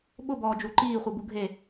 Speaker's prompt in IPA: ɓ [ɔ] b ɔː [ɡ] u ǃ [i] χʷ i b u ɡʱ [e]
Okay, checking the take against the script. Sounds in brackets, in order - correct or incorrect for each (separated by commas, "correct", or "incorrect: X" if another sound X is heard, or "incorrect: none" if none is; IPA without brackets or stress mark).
incorrect: ʊ, incorrect: d͡ʒ, incorrect: iː, correct